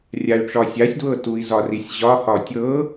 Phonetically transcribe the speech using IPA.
rʲ a y̯ ʈ͡ʂ ɒ sʲ a sʲ d w ɤ t u i̯ z ɒ r i sʲ ʑ ɒ h ɒ tʲ ɤ

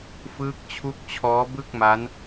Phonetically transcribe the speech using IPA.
f ɯː˦˥ k̚ t͡ɕʰ u˦˥ k̚ t͡ɕʰ ɔː˦˥ b ɯ˥˩ k̚ m a˦˥ n

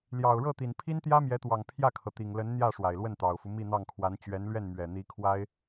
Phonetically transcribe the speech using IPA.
l j ɑ˨˩ ʊ̯ ɻ ɤ˥˩ t̪ i˨˩ n pʰ i˥ n t̪ j ä˥ m j ɛ˧˥ t̪ w ɑ˨˩ ŋ pʰ j ä˥˩ kʰ ɤ˩ t̪ i˨˩ ŋ l ə˧˥ n n̪ j ä˥˩ ʂ w a˨˩ ɪ̯ l w ə˥˩ n t̪ ɑ˨˩ ʊ̯ f u˦ m i˥˧ n̪ ɑ˥˩ ŋ kʰ w a˧˥ n t͡ɕ ɥ ɛ˧˥ n l ɥ ɛ˥˩ n m ɥ ɛ˨˩ n̪ i˧˥ kʰ w a˥ ɪ̯

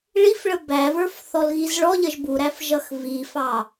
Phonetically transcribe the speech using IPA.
ɭ i f ɭ ə b æ v ə˞ f θ ɔ l ɣ i z ɭ ɔ ʎ ə ʒ b u ɾ æ f ʒ ʌ x v i f ɑ

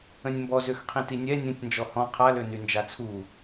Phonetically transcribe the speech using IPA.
ə̃ nʲ m b ɔ z ø x qʰ ĩ t i nʲ ɛ nʲ ə̃ tʲ n d͡ʒ ɔ h ɔ̃ qʰ a l ø n y n d͡ʒ a t͡sʰ u

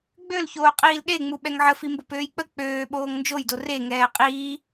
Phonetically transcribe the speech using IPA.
ɡ͡b ø l ç oː qʼ iː l ɗ e ŋ͡m u ɓ ɛ ŋ ʕ ə f i m b o p øː j k͡p ə k͡p øː ɓ oː ŋ n d͡ʒ o j d o r e ŋ ɛː qʼ iː

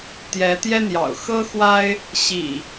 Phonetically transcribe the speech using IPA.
t̪ j ɛ˨˦ t̪ j ɛ˦ n̪ j ɑ̰˨˩ ʊ̯ x ɤ˦ x w a˦ ɪ̯ | ɕ ḭ˨˩

